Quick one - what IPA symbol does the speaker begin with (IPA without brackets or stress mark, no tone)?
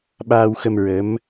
ɓ